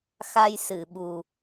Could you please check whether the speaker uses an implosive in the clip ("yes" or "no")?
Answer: yes